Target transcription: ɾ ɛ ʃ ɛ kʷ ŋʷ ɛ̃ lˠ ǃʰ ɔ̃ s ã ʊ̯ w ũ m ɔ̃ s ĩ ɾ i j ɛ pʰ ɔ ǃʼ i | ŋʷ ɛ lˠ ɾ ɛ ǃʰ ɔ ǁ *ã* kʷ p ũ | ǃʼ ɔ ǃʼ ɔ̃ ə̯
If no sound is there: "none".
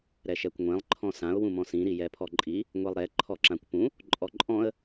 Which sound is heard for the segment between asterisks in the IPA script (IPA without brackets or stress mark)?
ã